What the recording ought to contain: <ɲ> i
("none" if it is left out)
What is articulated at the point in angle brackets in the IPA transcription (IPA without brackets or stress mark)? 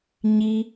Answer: ɲ